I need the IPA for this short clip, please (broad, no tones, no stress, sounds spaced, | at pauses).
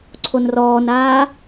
ǀʰ o n r ɔː n aː